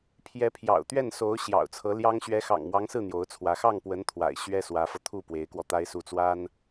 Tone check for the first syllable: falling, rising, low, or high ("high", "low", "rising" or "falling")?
rising